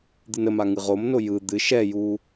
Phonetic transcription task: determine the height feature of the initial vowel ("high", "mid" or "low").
high